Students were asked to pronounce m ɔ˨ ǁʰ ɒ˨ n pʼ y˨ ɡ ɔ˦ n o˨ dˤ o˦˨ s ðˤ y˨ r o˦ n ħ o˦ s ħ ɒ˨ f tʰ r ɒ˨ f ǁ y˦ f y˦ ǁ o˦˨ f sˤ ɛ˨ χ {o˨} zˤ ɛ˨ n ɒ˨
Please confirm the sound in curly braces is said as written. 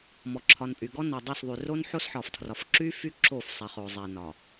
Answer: yes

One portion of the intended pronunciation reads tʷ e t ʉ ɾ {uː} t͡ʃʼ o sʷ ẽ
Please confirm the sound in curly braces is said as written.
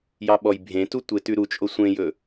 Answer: no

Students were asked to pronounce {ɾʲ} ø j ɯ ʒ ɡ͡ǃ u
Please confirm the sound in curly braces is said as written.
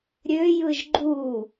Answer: yes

